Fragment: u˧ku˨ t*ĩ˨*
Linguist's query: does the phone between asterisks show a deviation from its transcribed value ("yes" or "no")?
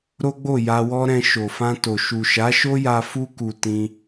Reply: yes